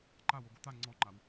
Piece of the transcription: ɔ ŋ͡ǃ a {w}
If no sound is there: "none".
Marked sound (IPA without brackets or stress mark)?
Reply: w